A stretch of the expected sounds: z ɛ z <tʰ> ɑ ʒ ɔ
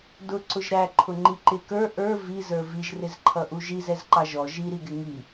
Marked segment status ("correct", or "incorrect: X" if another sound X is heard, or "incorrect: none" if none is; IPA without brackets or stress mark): incorrect: ǃ